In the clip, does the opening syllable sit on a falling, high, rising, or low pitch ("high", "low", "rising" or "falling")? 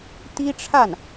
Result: high